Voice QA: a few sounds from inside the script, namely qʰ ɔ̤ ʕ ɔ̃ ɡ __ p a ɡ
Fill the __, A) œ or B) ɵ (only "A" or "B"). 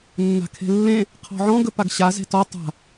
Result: B